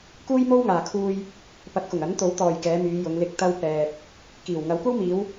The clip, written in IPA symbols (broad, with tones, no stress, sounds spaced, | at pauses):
k uː˥ j m o˥ w ŋ aː˨ kʰ uː˧ j | p ɐ˨˥ t̚ k ʊ˨˩ ŋ ɐ˨˥ n t̪ o˨˥ w t̪ ɔː˨ j k ɛː˨˧ m yː˨˧ j ʊ˨˧ ŋ l ɪ˧ k̚ t̪ ɐ˥ w p ɛː˧ k̚ | k iː˨˩ w ŋ ɐ˨˧ w kʷ ɐ˥ w m iː˨˧ w